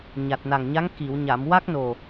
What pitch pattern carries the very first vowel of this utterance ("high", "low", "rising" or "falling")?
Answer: low